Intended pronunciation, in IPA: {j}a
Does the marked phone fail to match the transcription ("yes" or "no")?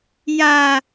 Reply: no